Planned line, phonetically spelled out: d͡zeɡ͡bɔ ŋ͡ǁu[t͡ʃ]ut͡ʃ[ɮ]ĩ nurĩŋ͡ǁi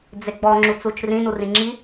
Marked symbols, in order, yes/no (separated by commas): no, no